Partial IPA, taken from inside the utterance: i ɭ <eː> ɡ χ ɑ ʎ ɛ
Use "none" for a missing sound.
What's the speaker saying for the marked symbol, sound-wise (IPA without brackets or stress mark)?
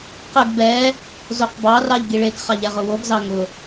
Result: e